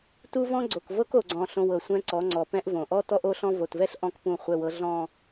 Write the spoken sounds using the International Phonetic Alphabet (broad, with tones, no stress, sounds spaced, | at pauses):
t u˦ v ɔ̃˦ ɡ͡ǀ o˨ k v ɤ˦ k o˨ ɡ͡ǀ ɔ̃˨ ɬ õ˨ w ɤ˨ sʷ ɛ̃˦ ǀ ɔ˨˦ ŋ͡ǀ ɔ˨ p ɛ̃˦ ʔ v õ˨ ʔ ɔ˦ t ɔ˦ ʔ o˦ ɬ ɔ̃˦ v o˨ t v ɛ˦ ɬ ʔ ɔ̃˦ k p ũ˦˨ χʷ ɛ˨ w ɤ˨ ɮ ɔ̃˨